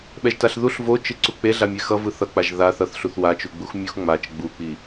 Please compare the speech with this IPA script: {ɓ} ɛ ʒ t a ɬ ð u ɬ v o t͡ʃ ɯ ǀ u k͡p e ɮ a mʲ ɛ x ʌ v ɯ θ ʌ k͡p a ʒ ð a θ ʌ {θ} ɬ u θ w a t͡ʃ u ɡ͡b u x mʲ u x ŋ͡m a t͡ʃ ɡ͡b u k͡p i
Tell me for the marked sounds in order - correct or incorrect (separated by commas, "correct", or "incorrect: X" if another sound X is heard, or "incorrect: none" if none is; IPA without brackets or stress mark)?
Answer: correct, correct